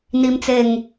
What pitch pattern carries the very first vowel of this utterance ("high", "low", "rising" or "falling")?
low